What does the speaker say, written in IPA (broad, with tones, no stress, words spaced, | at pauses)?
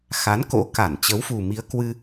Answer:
xa˨˦nko̰˧˥ka˧˩n t͡ɕə˨˦wfu˨˩mi˨˦ə̯ kwɨ˧